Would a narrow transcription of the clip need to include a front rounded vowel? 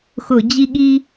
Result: no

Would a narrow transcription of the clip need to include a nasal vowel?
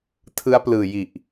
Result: no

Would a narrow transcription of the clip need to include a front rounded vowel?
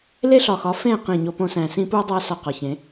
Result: no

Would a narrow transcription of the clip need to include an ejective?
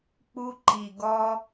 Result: no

